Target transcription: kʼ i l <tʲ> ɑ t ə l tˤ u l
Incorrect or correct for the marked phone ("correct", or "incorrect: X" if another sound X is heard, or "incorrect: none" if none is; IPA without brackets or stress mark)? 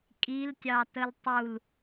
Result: correct